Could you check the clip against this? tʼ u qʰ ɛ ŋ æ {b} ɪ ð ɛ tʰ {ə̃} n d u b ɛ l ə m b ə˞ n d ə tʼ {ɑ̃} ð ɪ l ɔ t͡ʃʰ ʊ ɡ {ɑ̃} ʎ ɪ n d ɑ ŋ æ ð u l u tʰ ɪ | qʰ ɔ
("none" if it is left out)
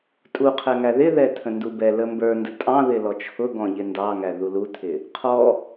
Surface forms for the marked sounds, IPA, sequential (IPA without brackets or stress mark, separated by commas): ð, ə̃, ɑ̃, ɔ̃